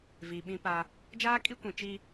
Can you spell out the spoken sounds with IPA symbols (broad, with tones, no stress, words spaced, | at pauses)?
viː˨ɓĩ˦pa˦ | d͡ʒaː˦kʼi˦kʷĩ˨ t͡ʃi˦